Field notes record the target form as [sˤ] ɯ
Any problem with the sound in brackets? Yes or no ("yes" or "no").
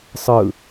no